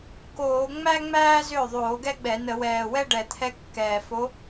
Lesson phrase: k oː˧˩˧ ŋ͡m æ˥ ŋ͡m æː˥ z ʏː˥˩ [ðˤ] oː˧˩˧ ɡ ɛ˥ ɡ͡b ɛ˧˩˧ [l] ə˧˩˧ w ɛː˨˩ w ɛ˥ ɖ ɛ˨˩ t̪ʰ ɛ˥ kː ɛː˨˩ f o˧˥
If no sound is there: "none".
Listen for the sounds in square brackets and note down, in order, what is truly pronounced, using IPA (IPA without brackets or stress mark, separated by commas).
ðˤ, n